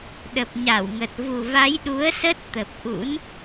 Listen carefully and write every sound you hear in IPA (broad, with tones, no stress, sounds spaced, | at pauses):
ɗ ə˨˩ p̚ ɲ a˧˩ w ŋ ə˨˩ t̚ v u˨˩ v a˨˦ j ɗ u˨˦ ə̯ s ə˦˥ t̚ t̪ ə˨˩ p̚ ʔ ṵ˧˥ n